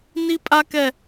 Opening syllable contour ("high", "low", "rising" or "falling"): high